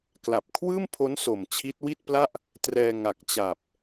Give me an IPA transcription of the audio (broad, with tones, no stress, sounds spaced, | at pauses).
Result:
k l a˨˩ p̚ kʰ w ɯː˥˩ m pʰ o˦˥ n s o˨˩ m t͡ɕʰ i˦˥ t̚ w i˥˩ t̚ p l a˥˩ ʔ | t r ɛː˧ ŋ a˨˩ k̚ t͡ɕ a˨˩ p̚